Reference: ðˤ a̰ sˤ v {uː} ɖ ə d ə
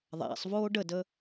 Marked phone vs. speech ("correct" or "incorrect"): incorrect